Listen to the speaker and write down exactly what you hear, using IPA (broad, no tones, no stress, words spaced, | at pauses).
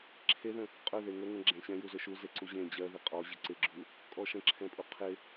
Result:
ǁʰeðə̃ | qʼɵ ðeŋəŋə̃ ɡ͡ǁɛ̃ɕɛ̃juzɵ ʃuze ǀuʑẽ d͡ʑɜ ðɪqʼɔ ʑəǀɪɡ͡ǁu | kʼɔʃə̃ǁʰɛ̃pʼu qʰɪ